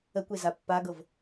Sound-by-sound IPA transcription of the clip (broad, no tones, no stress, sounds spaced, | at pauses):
ə kʷ e z a pː a ɡ ɤ v